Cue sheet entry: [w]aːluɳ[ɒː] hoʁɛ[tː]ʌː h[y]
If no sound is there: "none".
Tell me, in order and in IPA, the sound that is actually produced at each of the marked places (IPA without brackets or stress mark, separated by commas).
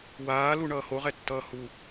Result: w, ʌː, tː, u